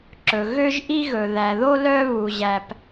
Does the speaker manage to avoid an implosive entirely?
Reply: yes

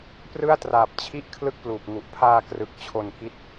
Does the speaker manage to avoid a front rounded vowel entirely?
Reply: yes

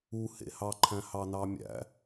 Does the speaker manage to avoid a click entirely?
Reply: no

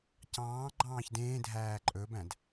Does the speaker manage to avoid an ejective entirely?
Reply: no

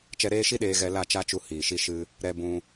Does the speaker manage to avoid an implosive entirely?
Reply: no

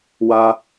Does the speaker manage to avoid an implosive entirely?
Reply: yes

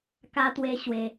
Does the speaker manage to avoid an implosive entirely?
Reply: yes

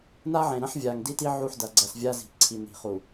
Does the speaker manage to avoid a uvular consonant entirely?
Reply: no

